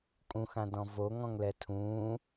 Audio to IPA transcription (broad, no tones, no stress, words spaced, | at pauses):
kʼũxãdɔ̃ voŋɔ̃ŋlɛ tʰũː